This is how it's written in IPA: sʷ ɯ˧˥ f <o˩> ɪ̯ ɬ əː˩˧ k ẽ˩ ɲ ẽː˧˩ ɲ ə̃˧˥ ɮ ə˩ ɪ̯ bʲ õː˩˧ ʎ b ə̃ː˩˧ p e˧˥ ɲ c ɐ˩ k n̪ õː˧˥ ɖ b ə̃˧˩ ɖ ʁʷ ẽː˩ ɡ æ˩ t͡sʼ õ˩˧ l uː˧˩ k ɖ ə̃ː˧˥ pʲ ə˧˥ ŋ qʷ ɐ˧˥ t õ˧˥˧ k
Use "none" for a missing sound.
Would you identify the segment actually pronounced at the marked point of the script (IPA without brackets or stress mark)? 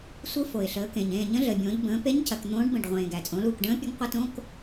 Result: o˩